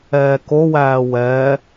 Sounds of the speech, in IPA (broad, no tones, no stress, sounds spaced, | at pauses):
ɛː k o w æː w ɛː